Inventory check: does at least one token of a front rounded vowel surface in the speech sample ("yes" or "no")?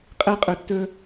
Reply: no